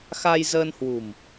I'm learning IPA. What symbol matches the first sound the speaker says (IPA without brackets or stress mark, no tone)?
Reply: x